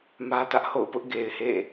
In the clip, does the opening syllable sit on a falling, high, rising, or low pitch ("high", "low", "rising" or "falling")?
high